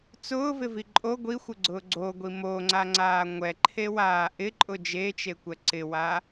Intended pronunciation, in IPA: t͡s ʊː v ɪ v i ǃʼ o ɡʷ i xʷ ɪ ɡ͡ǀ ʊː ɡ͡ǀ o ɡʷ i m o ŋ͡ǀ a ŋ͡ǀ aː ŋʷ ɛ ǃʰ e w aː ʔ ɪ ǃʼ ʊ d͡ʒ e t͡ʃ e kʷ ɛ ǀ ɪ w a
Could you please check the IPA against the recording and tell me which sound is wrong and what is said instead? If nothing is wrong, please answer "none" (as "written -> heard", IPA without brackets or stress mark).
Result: none